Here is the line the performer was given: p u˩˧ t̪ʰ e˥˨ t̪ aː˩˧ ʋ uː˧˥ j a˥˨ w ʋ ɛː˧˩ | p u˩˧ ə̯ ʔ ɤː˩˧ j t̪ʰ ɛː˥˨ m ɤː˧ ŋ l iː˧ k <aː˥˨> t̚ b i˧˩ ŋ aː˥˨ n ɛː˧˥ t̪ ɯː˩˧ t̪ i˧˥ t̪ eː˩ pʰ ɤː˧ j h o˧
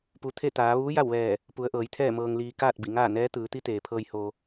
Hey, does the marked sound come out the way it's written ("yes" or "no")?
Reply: yes